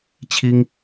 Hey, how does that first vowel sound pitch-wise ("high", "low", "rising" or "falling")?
high